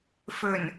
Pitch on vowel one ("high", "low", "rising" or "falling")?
low